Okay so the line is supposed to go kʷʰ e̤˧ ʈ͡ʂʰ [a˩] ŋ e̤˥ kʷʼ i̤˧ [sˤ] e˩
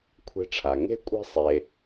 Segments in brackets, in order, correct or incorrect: correct, correct

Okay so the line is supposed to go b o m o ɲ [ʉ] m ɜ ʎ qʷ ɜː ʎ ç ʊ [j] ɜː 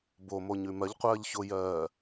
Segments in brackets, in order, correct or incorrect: correct, correct

